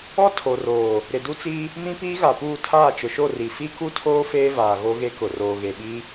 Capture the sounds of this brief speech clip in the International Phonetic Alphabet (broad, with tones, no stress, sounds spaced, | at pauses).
ɔ˦ tʰ o˨ r oː˨ | ɾ ɪ˨ d u˦ t͡s i˦ | m ĩ˦ p iː˦ ɣ a˨ p uː˦˨ tʰ aː˦˨ t͡ʃ ʊ˨ ʃ o˦˨ r i˨ f i˦ k u˦ tʰ oː˦ f eː˦ v aː˨ ɣ o˦ ɣ e˦ k ʊ˨ r oː˨ ɣ e˨ ɓ i˦